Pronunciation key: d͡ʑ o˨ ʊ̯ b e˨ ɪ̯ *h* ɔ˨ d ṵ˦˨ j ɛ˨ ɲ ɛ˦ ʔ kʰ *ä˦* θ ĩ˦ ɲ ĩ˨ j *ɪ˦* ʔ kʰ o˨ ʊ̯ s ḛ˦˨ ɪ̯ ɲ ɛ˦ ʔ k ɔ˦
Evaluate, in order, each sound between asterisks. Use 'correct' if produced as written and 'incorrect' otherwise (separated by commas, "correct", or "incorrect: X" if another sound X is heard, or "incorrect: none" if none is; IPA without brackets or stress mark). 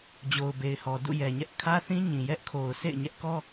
correct, correct, incorrect: ɛ˦